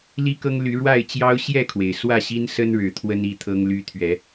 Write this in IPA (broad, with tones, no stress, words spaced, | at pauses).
li˦kɤ˦ŋ ly˨˦ɻwa˥˨ɪ̯t͡ɕjɑ˦ʊ̯ ɕjɛ˥˨kʰwe˩ɪ̯ swä˥˨ɕi˦nsə˦nɻɻ̩˨˦ t̪ʰwə˦ni˥˨t̪ʰɤ˦ŋly˦ t̪ʰɥɛ˨˦